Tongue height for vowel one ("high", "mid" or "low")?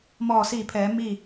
mid